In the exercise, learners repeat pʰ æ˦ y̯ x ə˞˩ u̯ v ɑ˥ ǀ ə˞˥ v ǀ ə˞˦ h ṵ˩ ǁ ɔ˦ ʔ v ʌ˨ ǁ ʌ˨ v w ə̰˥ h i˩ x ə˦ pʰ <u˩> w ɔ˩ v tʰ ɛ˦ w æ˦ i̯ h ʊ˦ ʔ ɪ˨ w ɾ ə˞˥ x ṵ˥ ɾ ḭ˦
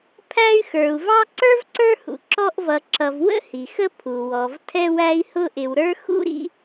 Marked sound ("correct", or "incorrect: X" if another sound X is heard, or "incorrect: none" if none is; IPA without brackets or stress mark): correct